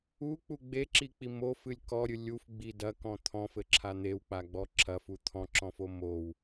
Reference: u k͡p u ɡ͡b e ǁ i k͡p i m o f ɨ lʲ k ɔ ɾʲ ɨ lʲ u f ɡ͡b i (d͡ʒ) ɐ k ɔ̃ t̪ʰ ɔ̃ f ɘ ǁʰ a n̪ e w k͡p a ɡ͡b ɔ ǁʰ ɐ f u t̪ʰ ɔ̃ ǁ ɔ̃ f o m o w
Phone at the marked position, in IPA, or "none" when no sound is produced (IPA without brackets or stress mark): d